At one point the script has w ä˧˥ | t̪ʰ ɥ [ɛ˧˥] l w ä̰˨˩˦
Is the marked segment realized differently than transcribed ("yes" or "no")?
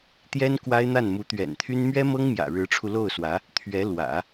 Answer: no